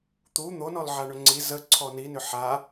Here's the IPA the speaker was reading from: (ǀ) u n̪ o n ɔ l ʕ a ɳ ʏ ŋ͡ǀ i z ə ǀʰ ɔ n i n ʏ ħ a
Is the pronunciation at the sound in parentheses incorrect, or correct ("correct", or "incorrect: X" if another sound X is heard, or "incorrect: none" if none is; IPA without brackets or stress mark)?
incorrect: t̪